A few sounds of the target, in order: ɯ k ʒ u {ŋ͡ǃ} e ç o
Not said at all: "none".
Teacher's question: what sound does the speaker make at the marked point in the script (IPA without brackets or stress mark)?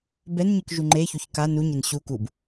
ŋ͡ǃ